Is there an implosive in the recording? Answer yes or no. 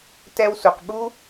yes